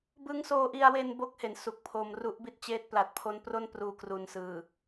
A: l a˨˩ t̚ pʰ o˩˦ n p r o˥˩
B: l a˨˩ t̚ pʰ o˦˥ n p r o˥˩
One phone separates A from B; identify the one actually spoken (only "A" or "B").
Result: B